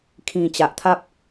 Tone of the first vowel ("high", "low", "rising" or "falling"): low